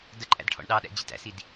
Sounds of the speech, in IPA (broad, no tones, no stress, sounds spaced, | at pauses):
d ə ǃʼ æ̰ d ʈʰ ɔ̰ ɳ ɗ ɑ ɗ æ̰ d͡ʑ ɪ t æ̰ s i d